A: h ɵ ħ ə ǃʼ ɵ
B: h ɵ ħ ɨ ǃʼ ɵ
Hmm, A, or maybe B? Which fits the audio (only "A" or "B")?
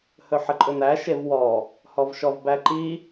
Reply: A